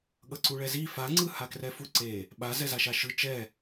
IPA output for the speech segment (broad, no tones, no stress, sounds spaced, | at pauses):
ɠ ʌ ǀ u ɭ ɛ z i f a ŋ͡ǀ ɯ h a k r ɛ f u ǀ e | ɓ a z ɛ z a ʃ a ʃ ɯ t͡ʃ ɛ